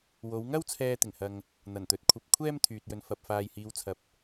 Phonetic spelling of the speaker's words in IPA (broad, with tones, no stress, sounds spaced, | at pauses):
w o˨˧ w ŋ ɐ˥ w t͡sʰ ɛː˧ t̪ ɪ˨˩ ŋ h ɐ˨ ŋ | n̪ ɐ˨˩ n t̪ ɵ˨˥ t̚ kʷʰ ɐ˧ p̚ kʷʰ ɛː˥ m t̪ʰ yː˨ t̚ j ɵ˨ n f ɐ˨ p̚ f aː˨ j h iː˨˧ w t͡sʰ ɐ˨ p̚